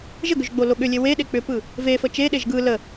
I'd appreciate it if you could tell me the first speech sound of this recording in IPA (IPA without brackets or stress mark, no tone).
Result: ʒ